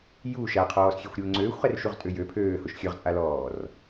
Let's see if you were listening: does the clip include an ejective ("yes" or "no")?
yes